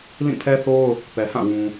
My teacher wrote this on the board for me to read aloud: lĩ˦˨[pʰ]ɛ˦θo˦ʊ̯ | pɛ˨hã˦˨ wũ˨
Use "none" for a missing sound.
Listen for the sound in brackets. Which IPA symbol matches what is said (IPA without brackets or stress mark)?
pʰ